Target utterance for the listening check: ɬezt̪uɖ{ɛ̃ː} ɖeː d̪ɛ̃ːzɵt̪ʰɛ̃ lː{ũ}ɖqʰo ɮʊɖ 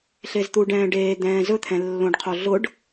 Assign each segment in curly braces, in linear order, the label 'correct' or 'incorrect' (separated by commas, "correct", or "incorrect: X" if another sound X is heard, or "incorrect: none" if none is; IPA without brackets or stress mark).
correct, incorrect: õ